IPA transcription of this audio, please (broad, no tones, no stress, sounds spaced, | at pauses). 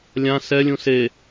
lʲ ã s ɛ lʲ ũ s e